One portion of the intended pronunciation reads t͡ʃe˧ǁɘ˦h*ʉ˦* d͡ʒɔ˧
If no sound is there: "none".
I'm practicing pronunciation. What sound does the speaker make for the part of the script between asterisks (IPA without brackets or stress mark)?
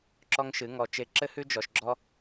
ʉ˦